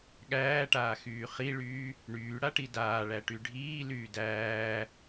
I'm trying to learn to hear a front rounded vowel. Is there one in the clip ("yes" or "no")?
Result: yes